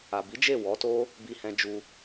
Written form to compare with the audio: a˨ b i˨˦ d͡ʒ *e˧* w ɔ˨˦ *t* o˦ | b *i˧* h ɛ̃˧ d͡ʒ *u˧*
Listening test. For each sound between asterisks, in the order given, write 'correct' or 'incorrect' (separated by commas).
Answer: incorrect, correct, correct, correct